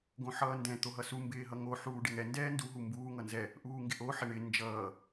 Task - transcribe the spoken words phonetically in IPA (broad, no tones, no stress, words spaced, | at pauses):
ɡõħʌːndɛ̃ t̪oɦʌsu mbɪːɦʌŋo ħuːɖɪŋɛ ndɛːndu ɦumbuː ŋʌnzɛ | ʔuːŋɡɪʔo ħɪɳɪ nd͡ʒʌː